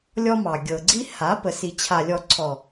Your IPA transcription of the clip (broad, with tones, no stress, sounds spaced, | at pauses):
lʲ ɔ˦ m ɑ˨ ɡʲ ɤ˨ ɡ͡ǀ i˦ h a˨˦ p ə˨ s i˨ t͡ɕʰ a˨ lʲ ɔ˨ ǀʰ ɔ˨